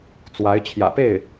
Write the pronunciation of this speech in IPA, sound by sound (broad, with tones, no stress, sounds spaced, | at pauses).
t͡s w a˧˥ ɪ̯ t͡ɕʰ j ä̰˨˩ p e˥˩ ɪ̯